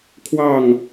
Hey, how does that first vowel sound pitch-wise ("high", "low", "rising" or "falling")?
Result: falling